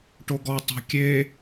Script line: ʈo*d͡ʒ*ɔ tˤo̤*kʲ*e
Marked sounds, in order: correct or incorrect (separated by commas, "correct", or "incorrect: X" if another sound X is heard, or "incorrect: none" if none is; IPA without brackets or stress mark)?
incorrect: ɡ, correct